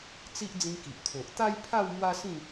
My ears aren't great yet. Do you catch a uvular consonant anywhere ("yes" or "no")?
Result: no